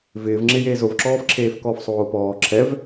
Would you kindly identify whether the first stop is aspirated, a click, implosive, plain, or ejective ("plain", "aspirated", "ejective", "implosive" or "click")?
click